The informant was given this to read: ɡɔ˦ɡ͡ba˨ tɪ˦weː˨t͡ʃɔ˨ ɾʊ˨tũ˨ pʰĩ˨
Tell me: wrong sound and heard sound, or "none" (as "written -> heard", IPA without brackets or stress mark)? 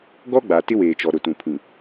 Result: none